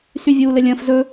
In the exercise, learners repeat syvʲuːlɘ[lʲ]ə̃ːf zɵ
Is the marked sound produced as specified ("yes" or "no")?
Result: yes